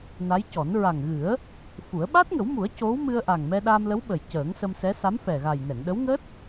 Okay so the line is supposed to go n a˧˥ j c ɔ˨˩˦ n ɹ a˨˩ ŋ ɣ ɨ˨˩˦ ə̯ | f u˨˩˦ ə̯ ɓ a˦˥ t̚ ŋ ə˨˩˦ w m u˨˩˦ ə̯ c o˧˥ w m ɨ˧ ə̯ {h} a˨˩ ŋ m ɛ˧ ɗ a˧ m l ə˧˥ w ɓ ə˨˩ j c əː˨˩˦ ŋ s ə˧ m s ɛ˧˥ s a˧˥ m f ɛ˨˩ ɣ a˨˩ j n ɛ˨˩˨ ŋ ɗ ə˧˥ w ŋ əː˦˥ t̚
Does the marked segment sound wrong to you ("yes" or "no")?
yes